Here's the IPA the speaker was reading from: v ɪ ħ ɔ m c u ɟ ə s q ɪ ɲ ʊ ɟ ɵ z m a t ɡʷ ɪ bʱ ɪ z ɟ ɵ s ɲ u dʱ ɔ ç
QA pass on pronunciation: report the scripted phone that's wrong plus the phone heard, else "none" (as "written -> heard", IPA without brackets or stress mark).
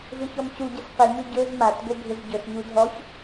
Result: ħ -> ç